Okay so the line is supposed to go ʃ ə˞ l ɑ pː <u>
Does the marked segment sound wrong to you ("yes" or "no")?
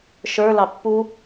no